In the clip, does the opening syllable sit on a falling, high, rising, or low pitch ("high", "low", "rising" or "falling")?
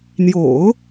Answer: low